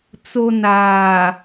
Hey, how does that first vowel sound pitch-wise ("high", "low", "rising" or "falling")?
low